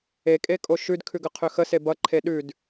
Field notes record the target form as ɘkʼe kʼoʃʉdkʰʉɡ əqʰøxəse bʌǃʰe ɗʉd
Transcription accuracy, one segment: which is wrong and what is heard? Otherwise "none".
ɘ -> e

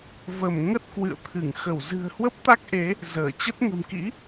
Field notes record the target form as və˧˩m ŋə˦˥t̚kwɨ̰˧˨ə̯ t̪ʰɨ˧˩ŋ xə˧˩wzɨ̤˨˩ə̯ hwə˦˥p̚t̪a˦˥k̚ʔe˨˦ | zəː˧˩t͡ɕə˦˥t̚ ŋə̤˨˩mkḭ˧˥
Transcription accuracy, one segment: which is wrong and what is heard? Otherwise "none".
none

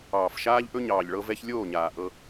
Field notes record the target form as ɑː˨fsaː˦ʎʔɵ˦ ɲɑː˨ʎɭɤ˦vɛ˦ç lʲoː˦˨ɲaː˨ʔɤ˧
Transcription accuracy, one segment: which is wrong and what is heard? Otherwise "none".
s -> ʃ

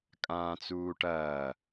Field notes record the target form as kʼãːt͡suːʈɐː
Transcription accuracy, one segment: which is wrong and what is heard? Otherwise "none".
none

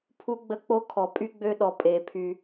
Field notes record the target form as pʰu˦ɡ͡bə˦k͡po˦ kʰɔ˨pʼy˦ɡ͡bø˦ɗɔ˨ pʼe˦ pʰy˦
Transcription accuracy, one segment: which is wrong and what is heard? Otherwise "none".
none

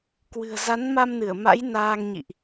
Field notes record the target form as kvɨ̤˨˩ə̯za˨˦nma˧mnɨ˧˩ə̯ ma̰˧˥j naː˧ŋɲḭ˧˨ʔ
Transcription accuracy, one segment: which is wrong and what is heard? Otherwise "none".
v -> w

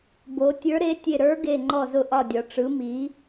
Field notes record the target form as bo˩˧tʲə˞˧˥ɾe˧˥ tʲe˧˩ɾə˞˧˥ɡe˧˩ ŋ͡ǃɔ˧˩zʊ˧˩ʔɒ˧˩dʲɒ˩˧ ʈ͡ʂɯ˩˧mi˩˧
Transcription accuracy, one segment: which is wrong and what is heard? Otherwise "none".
none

